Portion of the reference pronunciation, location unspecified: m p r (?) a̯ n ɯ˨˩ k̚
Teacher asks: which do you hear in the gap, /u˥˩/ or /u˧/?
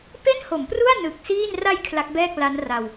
u˥˩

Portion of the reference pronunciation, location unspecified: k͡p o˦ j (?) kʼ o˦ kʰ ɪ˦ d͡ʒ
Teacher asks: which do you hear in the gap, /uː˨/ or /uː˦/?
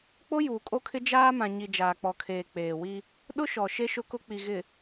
uː˨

